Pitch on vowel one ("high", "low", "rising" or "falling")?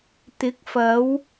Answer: rising